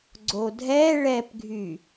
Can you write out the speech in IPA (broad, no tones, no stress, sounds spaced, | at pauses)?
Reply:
ɡ͡ǀ o dʱ ɛ ɭ ɛ p ɡʱ y